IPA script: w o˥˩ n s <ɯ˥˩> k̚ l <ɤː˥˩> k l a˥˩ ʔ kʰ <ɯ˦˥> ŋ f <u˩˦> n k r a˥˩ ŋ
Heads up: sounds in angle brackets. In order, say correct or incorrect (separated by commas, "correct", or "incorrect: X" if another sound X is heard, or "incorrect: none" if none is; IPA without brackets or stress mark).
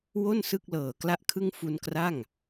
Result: correct, incorrect: ɤː˨˩, incorrect: ɯ˥˩, incorrect: u˧